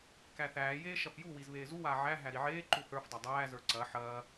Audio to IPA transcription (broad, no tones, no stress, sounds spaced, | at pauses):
k æ θ æː j eː ʃ ɐ f j u w i z β eː z u w aː ʕ æ ɦ æ ɾ i ʕ eː ǃ u θ ə˞ f dˤ ɐ dˤ æː z ə˞ ǀ ɐ ħ ɐː